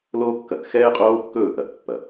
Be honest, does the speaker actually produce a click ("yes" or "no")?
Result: no